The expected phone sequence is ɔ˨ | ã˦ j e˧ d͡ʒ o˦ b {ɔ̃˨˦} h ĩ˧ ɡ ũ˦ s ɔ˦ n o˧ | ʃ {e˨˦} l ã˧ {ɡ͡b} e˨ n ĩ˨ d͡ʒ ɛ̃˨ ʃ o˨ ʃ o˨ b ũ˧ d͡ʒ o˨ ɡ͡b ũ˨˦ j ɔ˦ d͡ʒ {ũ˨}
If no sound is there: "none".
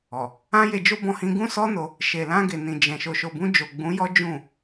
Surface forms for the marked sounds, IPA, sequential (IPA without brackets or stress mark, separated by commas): ɔ̃˧, e˨, ɡ, ũ˦˨